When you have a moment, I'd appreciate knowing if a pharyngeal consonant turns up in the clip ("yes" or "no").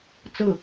no